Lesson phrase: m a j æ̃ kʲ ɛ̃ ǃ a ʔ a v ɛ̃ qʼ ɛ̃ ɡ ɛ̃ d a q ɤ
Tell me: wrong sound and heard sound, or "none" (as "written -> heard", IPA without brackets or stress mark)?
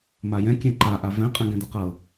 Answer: æ̃ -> ɛ̃